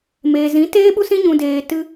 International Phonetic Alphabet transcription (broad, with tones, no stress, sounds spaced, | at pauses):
m eː˨ z ĩ˨˦ t eː˦ ɓ u˦ s ĩ˦ ɲ ũ˧ d eː˧ t ɨ˧